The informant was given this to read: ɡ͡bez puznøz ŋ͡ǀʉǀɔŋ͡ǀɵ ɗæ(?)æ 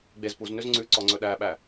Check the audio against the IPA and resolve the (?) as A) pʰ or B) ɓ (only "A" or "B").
B